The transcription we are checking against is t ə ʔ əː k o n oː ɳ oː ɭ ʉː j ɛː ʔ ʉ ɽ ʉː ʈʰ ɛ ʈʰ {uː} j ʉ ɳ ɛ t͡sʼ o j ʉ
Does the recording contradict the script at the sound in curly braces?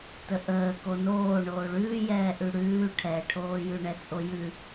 yes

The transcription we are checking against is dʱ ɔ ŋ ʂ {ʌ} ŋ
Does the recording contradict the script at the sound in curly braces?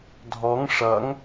no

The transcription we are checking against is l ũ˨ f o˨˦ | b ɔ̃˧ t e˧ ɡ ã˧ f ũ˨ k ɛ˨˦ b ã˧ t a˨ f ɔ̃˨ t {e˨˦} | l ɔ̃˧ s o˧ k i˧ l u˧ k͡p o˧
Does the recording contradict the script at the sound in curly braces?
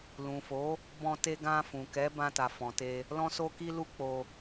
yes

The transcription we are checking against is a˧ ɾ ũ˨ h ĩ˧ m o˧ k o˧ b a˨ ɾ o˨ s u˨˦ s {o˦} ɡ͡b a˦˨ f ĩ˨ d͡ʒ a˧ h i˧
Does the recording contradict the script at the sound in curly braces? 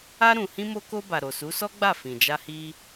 yes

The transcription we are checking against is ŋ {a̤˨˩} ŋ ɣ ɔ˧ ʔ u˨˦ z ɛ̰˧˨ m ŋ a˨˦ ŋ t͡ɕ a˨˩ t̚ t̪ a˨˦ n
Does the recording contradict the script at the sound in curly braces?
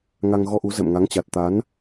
yes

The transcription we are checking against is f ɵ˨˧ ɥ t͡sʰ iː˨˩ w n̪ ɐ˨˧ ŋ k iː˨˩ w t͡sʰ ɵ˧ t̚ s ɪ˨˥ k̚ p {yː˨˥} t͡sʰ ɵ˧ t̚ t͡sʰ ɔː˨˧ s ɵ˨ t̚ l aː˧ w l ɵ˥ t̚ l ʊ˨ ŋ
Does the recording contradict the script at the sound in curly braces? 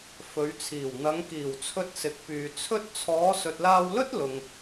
yes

